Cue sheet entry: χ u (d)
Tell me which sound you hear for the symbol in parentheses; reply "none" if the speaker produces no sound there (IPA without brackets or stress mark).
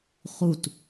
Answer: t